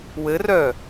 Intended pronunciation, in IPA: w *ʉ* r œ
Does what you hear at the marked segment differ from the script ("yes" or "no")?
yes